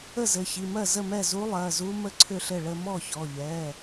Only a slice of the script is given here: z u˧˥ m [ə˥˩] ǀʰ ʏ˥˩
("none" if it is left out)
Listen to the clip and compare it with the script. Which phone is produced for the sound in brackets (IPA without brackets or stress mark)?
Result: ə˥˧